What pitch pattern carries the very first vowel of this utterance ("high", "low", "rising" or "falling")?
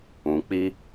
low